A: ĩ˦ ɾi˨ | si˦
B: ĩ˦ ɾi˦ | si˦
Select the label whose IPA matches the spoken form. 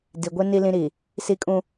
A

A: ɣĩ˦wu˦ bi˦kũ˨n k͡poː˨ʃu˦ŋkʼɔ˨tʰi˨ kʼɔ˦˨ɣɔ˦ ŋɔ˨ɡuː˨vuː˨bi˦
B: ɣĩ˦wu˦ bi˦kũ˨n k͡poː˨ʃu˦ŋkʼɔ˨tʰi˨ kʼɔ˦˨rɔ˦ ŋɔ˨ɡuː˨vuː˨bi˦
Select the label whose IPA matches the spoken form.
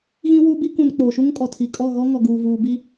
A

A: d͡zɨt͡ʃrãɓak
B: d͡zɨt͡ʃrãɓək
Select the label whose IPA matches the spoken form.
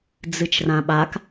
A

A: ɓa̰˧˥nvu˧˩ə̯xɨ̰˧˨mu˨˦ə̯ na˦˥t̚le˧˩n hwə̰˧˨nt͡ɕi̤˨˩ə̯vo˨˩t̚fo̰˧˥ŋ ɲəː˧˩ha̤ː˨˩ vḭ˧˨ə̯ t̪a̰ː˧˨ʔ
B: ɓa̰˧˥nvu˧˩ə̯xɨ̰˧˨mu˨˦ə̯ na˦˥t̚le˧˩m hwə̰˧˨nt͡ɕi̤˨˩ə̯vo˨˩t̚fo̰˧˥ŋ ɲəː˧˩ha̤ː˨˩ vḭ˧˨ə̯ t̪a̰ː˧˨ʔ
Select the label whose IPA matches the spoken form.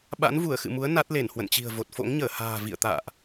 A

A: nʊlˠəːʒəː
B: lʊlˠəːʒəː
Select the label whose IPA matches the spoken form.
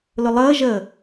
B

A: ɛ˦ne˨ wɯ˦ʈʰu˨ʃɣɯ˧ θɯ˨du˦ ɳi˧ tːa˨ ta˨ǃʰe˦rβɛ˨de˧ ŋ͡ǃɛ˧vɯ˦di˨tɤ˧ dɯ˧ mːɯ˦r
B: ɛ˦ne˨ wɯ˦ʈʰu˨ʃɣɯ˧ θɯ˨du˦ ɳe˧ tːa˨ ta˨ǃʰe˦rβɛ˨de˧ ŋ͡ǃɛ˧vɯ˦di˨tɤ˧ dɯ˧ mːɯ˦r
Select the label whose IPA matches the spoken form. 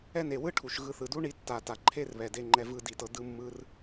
A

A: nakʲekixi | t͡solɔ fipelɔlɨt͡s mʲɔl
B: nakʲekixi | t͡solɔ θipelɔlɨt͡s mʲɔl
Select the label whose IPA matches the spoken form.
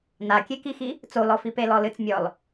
A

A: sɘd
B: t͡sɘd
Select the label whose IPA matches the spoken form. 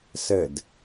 A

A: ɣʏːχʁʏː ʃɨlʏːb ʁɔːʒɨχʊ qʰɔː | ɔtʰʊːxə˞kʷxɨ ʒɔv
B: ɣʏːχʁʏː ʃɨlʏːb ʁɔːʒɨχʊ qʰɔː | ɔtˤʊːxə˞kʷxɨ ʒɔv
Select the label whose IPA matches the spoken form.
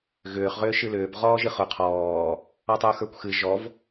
B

